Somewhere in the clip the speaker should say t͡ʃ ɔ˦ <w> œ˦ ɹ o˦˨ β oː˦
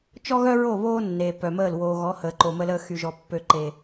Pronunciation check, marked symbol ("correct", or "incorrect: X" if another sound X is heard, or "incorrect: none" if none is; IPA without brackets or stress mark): incorrect: ɣ